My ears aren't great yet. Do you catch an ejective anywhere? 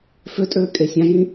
yes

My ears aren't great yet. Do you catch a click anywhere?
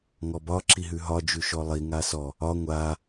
yes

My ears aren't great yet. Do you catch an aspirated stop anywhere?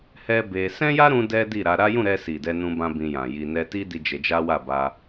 no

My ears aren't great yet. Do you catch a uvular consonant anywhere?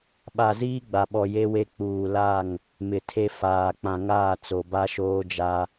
no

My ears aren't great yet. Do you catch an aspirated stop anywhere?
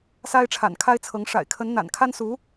yes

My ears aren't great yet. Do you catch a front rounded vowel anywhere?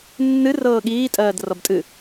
no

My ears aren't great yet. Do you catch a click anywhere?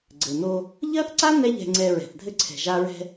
yes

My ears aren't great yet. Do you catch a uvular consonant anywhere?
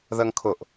no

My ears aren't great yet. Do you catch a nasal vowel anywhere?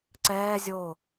no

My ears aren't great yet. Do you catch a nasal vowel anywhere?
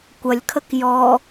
no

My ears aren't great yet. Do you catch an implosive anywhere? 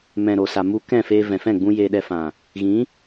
yes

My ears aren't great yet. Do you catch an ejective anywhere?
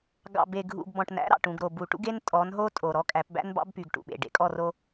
yes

